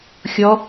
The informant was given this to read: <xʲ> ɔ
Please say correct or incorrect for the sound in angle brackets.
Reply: correct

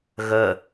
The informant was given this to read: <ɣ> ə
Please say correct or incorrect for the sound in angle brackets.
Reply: correct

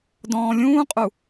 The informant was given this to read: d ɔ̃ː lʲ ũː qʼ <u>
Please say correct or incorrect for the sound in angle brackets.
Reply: correct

